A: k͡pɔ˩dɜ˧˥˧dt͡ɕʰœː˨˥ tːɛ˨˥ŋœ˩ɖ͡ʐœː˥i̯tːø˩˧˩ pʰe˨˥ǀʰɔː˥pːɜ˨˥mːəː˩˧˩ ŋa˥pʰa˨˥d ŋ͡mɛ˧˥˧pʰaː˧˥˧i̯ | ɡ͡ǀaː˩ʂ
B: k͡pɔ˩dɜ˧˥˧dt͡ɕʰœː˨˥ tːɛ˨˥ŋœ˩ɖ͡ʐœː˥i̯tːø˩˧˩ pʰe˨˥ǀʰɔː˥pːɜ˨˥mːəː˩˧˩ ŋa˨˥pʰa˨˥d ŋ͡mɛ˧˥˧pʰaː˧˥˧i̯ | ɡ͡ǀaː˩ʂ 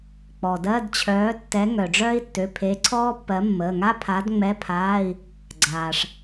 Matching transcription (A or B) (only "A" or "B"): A